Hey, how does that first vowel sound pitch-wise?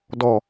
low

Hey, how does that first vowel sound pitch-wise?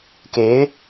rising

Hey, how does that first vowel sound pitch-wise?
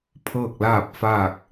falling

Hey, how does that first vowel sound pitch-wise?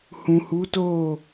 low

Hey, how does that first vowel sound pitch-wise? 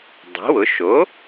rising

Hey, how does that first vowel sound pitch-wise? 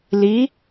rising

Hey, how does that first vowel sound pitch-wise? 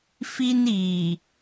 high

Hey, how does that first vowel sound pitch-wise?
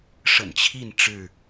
low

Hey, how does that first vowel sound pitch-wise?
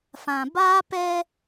low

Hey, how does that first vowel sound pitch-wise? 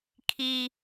high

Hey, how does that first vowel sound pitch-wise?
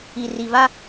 low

